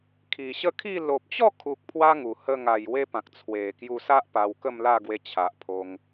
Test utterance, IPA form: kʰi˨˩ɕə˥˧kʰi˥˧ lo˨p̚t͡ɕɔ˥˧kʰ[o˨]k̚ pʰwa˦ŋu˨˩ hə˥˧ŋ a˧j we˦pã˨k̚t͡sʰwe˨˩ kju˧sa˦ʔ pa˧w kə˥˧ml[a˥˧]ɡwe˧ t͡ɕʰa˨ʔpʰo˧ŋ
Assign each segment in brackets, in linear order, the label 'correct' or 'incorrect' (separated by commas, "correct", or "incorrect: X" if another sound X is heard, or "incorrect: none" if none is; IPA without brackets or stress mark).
incorrect: u˨, correct